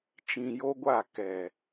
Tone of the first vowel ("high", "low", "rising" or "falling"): low